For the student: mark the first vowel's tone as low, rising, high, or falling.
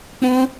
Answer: high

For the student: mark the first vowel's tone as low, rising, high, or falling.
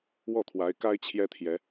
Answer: falling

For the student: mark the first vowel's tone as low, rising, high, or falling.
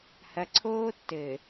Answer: low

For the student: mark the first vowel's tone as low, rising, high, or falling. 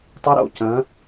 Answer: rising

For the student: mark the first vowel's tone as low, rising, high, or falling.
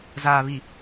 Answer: low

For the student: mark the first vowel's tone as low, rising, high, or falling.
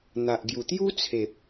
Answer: low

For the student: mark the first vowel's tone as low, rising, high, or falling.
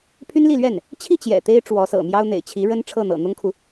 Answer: high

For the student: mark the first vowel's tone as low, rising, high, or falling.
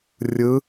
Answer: rising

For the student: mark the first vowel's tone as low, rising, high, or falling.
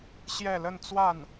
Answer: falling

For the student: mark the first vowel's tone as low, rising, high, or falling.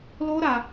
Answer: high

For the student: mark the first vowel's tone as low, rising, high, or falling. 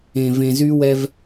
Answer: low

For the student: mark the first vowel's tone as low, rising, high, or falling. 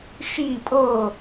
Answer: falling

